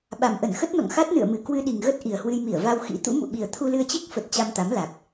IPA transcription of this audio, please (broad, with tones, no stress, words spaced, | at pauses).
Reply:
ɓa˨˩mʔə˧˩nxə˦˥t̚nɔ̰˧˨ŋ xa˦˥t̚nɨ̰˧˨ə̯mɨ˨˩ kwɨ˧ɗi˨˩ŋɣə˦˥t̚ ʔi˨˩ə̯hwɨ˧jmi˧˩ə̯ va˧wxḭ˧˥ t̪ṵ˧˥mṵ˧˨ ɓi˨˩ə̯t̪ʰu˧lɨ˧ə̯t͡ɕi˦˥k̚ fə˨˩t̚ t͡ɕa˧mt̪a˨˦mla˨˩k̚